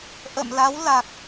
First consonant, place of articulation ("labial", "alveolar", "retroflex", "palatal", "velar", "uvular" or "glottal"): glottal